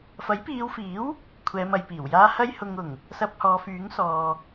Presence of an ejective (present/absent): absent